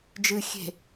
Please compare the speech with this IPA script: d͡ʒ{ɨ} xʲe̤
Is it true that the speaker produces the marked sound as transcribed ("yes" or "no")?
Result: yes